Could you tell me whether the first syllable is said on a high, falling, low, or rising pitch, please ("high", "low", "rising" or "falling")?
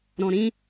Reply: low